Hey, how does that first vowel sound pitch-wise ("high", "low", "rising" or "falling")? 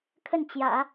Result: falling